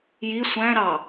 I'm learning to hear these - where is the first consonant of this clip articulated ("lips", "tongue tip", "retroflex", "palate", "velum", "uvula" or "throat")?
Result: palate